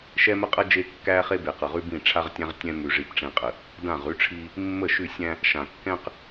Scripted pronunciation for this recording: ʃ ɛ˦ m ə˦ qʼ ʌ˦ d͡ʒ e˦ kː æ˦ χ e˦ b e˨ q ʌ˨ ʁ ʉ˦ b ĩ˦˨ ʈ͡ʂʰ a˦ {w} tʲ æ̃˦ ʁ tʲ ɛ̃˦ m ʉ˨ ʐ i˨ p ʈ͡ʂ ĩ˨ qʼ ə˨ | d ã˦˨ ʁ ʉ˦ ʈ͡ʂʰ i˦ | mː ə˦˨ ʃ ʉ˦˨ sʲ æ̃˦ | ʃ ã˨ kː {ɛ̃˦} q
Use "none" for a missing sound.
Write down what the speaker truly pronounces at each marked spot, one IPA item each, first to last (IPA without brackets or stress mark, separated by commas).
ʁ, ɛ̃˦